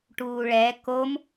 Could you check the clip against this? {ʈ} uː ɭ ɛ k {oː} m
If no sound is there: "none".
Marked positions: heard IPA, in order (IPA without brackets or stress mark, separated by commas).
ʈ, o